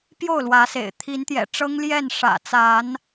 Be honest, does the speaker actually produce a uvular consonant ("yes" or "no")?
no